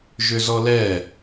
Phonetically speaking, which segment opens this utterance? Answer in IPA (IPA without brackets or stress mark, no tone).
ʒ